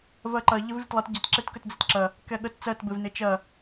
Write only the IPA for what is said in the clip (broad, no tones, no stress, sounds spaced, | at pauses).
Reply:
v ɜ ǃ ɐ ʎ ɪ v lʲ ə t lˠ ə t ɟ ɐ t ǁ e t k ə t d͡z e t ǁ ɐ | k ɛ ɠ ə t t͡s ɜ t b ɪ v n ɪ t͡ʃ ɐ